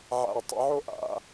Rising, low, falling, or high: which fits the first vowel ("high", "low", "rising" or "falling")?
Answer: low